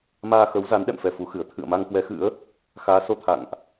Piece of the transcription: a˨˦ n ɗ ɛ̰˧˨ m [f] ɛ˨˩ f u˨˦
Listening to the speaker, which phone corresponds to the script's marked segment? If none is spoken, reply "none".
f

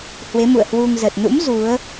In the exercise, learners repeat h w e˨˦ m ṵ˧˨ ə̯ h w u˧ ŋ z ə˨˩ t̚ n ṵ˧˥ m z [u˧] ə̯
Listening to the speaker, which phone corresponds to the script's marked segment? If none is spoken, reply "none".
u˨˦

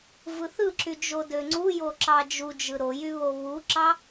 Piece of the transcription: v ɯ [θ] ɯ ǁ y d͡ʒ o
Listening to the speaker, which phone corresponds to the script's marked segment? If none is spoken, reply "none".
θ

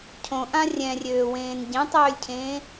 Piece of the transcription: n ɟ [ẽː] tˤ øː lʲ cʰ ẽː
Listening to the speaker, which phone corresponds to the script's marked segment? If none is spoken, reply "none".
ẽ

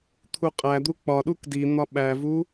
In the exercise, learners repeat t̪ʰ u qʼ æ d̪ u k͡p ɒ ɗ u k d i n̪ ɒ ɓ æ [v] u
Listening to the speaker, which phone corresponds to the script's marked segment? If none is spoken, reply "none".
v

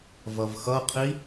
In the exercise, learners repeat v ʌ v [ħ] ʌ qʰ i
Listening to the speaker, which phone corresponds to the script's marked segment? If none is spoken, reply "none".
x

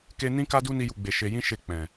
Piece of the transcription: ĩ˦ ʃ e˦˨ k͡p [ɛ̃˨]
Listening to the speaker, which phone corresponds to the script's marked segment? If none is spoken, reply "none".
ɛ̃˨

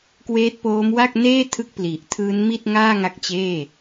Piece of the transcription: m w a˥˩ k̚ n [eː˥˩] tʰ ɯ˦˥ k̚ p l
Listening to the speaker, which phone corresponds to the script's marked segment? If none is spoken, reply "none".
eː˥˩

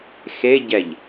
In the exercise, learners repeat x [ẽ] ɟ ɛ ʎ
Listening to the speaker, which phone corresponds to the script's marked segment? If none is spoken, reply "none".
e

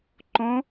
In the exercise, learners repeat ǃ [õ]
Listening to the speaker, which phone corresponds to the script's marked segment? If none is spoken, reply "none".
õ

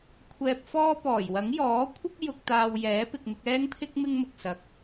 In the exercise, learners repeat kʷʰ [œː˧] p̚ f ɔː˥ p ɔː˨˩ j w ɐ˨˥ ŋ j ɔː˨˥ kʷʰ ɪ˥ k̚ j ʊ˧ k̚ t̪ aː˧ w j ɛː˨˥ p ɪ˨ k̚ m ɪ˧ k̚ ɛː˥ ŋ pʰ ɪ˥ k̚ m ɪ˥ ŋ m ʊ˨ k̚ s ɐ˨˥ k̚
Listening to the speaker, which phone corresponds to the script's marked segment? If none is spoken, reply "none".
ɛː˧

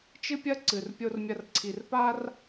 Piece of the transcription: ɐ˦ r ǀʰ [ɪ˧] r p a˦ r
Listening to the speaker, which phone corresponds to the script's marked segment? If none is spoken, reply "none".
i˧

